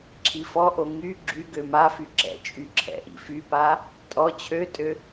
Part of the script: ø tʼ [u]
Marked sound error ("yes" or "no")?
yes